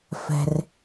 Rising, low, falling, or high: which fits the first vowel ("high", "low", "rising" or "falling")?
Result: low